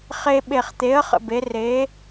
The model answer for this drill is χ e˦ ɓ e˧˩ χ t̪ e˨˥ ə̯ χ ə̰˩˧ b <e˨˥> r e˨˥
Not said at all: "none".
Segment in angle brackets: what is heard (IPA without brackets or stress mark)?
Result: e˨˥